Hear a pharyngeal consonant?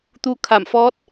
no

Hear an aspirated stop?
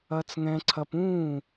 yes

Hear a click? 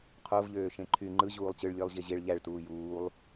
yes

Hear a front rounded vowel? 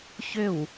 yes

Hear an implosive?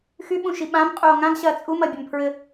yes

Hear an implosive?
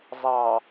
no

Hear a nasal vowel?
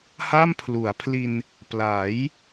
no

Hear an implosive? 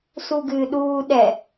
yes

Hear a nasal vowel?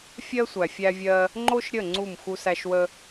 no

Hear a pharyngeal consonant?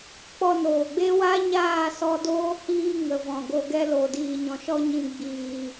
no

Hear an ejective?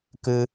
no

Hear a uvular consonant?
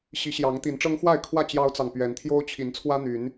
no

